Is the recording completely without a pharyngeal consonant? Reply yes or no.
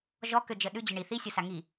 yes